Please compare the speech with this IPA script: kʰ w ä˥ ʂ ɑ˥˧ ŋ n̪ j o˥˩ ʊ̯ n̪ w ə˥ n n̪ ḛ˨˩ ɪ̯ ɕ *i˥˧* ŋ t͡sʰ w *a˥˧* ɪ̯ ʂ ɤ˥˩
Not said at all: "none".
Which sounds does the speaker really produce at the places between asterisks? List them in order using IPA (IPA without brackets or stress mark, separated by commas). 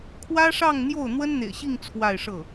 i˥˧, a˥˧